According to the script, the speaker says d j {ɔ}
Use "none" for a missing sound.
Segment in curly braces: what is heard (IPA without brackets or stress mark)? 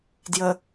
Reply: ə